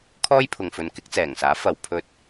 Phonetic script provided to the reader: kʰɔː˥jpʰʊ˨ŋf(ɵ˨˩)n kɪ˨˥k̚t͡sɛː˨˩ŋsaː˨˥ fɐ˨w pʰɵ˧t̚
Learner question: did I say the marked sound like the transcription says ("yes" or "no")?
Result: no